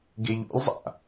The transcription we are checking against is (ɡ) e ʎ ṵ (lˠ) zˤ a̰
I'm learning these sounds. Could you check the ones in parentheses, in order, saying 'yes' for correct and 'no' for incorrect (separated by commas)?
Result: yes, yes